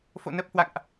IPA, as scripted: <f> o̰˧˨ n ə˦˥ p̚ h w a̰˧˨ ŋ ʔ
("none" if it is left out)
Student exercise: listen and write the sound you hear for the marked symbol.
f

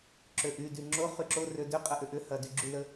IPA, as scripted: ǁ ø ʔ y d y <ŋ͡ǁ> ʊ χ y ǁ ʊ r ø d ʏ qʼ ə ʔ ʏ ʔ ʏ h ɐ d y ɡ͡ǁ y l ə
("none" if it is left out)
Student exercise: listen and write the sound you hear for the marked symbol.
ŋ͡ǁ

